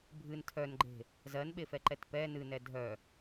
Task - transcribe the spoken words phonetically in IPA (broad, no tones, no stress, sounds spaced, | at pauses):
bʱ ɨ n tʰ œ n ɡ͡ǃ e̤ | z ɜ n ɓ e f ɛ ǃ ɛ t p ɛ n ɨ n ɛ dʱ œ